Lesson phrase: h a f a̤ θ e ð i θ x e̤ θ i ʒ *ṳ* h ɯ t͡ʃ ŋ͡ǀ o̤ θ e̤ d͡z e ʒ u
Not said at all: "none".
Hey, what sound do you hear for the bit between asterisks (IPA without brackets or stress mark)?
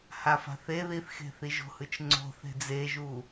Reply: o̤